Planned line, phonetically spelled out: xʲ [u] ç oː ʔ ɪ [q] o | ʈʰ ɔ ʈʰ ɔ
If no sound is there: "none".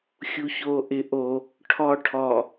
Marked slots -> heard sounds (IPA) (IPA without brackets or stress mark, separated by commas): u, ʔ